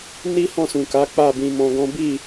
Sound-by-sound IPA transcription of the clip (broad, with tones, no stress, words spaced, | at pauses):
ni˦hɔ̃˦˨sũ˨ka˨˦ k͡pa˦˨bĩ˧mɔ̃˧ɡɔ̃˦ bi˦˨